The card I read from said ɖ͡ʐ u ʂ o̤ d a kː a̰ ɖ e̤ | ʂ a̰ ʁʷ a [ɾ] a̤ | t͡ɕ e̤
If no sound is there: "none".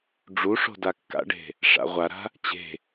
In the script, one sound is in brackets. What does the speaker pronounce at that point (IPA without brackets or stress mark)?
ɾ